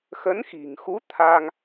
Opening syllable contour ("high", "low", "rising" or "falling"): rising